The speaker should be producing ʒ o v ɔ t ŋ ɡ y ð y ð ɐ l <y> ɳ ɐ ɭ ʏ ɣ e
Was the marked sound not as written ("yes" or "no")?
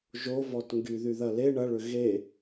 yes